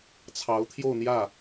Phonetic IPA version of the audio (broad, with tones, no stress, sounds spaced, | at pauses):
t͡sʰ ɑ˧˥ ʊ̯ t̪ʰ j o˥˧ ʊ̯ n̪ j ä˥˩